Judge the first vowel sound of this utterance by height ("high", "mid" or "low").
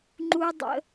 high